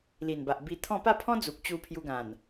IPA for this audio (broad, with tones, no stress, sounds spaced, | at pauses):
l i˨˩ n b a˨ ʔ b i˧ t̪ʰ ɔ̃˥˧ p a˥˧ pʰ ɔ̃˦ d͡z u˨ k̚ t͡ɕ u˧ pʰ j u˧ ɡ ã˨˩ n